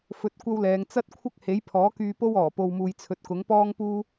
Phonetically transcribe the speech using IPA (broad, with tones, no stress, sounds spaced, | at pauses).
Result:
f ɵ˧ t̚ kʷ ɐ˥ w l ɛː˨˧ ŋ t͡s ɐ˥ t̚ kʷʰ ɐ˥ k̚ h e˨˥ j pʰ ɔː˨˥ k yː˧ p o˥ w ɔː˨˩ p o˧ w m uː˧ j t͡sʰ ɵ˧ t̚ k ʊ˨˥ ŋ p ɔː˥ ŋ p uː˥